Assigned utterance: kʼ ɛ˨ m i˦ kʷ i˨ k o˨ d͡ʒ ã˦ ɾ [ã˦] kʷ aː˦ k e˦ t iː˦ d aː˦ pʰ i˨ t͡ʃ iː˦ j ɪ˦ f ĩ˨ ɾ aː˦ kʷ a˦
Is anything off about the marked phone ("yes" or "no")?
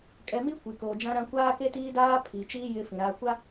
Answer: no